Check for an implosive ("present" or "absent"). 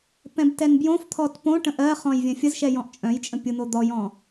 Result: absent